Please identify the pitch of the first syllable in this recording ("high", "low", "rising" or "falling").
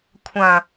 low